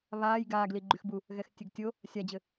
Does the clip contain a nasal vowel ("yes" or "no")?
no